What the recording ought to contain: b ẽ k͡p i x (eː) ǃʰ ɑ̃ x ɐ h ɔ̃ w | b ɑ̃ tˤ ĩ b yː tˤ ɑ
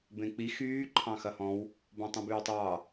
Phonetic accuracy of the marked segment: incorrect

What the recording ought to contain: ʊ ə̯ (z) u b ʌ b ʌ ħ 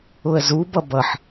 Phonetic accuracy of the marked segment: correct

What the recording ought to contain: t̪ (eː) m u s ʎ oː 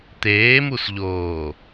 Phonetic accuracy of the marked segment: correct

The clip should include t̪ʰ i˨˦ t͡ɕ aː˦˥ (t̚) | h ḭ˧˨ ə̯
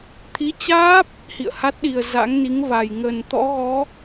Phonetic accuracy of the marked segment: incorrect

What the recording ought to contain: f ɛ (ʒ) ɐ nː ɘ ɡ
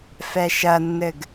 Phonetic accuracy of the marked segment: incorrect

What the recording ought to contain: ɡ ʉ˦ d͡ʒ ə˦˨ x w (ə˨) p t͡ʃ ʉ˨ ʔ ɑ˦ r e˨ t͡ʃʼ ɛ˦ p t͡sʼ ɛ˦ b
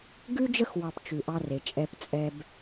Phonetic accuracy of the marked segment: incorrect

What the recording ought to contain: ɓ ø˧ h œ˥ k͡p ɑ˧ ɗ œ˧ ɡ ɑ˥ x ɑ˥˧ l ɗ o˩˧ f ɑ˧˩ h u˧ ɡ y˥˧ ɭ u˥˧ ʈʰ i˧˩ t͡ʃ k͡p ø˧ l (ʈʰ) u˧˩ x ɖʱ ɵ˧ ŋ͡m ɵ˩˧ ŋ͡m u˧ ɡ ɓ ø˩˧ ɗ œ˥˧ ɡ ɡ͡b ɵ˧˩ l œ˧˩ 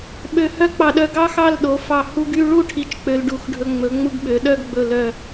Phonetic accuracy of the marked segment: incorrect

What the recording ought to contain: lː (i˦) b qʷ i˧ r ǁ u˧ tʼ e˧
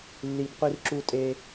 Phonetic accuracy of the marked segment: incorrect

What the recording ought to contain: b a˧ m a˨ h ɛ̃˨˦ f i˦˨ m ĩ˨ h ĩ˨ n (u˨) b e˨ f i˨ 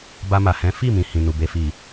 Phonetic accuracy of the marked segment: correct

